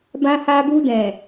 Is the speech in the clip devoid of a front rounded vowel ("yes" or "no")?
yes